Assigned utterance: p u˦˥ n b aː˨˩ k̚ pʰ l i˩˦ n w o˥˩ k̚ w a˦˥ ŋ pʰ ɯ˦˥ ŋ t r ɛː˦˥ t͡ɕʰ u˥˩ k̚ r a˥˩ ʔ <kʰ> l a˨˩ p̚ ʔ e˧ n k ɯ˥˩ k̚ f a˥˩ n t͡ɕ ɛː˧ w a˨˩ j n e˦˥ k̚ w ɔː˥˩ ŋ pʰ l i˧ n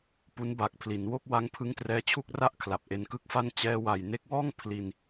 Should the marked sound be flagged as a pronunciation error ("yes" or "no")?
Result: no